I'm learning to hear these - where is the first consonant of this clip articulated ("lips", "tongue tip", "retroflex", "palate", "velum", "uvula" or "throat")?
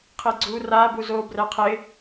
uvula